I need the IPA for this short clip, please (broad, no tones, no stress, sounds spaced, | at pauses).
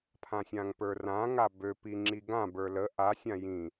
pʰ ã sʲ ã ŋ p ə˞ r ã ŋ a b ø p i ŋ͡ǁ i ɡ ã b ə˞ l ə ʔ a sʲ ã j ĩ